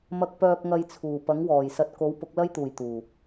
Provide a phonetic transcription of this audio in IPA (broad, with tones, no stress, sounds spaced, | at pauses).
m ɐ˧ k̚ p œː˧ k̚ ŋ ɐ˧ j t͡sʰ uː˨˩ p ɐ˨˥ ŋ w ɔː˨˩ j s ɐ˧ t̚ k o˨˥ w p ʊ˨˥ k̚ l ɐ˥ j t̪ uː˨˩ j t̪ uː˨˩